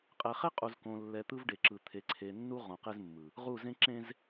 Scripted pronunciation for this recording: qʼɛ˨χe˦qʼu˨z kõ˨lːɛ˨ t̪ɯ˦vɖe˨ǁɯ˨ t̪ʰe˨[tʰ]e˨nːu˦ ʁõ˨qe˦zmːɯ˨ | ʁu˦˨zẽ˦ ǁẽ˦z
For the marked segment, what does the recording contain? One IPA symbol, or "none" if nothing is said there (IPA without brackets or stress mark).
ǀʰ